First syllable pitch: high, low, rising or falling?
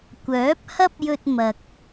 rising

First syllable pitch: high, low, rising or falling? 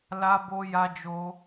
high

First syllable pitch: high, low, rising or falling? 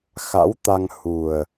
rising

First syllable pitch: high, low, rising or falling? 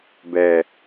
low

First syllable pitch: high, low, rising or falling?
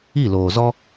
falling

